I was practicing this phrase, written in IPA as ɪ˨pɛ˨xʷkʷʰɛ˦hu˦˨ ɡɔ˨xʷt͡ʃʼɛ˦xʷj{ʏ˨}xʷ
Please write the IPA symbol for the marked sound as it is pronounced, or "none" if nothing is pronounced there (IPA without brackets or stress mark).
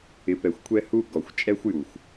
u˨